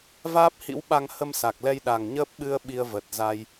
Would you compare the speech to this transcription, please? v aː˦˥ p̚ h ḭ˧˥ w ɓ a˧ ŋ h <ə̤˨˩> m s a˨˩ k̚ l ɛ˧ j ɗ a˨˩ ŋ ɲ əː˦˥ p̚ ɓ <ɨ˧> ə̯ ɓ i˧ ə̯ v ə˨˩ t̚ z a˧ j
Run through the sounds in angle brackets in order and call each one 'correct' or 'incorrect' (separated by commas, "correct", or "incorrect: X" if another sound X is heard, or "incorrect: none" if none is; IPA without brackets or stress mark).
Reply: incorrect: ə˧, correct